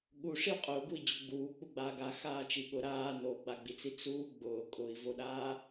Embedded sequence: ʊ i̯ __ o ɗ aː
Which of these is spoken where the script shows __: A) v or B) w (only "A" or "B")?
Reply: A